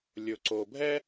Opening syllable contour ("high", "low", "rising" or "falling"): low